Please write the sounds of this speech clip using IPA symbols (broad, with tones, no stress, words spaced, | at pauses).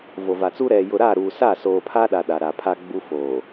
vo˨va˨t͡su˦ ɾɛ˨ jʊ˨ɾa˦˨ɾuː˨ sa˦˨soː˨pʰa˦ɗa˨ ɗa˨ɾa˨pʰa˦ɡ͡bu˦ foː˨